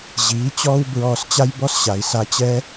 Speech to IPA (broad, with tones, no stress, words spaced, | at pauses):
ʑiː˨˦t͡ɕɔː˦w bɹɔː˧st͡ɕa˦jbɔ˦s ɕa˨i̯sa˧t͡ɕɛ˦